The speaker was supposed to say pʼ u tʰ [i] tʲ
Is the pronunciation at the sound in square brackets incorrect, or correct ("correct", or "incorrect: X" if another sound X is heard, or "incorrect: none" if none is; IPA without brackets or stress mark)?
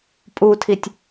correct